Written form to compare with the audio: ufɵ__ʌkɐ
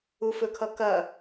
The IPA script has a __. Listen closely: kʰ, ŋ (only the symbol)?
kʰ